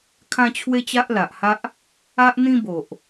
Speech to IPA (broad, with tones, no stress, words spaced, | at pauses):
kʰã˦t͡ɕʰwe˦t͡ɕa˦ʔ la˨ʔha˦ʔ | a˦ʔ n̪ĩ˦bo˨ʔ